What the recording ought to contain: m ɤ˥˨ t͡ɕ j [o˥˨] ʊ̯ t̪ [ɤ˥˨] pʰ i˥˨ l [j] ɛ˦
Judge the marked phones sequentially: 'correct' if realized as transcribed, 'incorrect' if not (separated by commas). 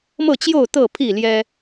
correct, correct, correct